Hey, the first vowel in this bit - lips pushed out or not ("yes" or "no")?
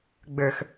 no